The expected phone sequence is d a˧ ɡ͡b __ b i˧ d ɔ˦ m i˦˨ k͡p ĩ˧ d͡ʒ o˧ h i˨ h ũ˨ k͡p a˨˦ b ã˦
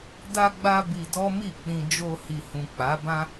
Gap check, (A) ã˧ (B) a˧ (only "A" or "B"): B